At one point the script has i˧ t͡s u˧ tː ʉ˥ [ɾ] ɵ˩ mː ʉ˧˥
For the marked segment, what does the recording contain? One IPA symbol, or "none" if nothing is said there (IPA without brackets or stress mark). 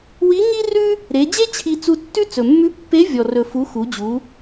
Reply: t͡s